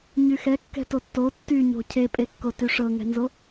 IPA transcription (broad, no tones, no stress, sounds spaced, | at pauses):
ɲ y x ɛ kː ɛ̤ t o tː o tː y ɲ o̤ cʰ e pʼ e kː o t y ʂ ɤ ŋ ɛ̤ n z o